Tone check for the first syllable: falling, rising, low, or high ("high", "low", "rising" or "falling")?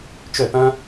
falling